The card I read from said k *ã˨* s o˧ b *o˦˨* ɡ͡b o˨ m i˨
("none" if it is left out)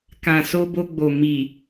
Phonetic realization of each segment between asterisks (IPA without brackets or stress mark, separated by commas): ã˨, o˧